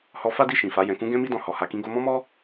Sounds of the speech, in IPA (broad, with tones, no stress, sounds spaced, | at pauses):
h ɔ˧ f a˦ d i˦˨ ʃ ĩ˨ f a˨˦ j ɛ̃˧ k ũ˦ ɡ ɛ̃˦ m i˦ d ɔ̃˧ h ɔ˧ h a˦ k ĩ˧ ɡ o˧ m ɔ̃˦ m ɔ˦